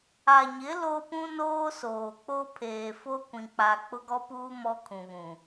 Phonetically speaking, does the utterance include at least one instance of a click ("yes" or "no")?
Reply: no